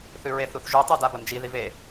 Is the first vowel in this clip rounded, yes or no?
yes